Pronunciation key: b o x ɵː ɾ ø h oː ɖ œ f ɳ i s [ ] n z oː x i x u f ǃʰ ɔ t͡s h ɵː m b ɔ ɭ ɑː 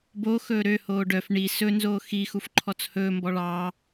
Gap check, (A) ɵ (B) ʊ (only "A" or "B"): A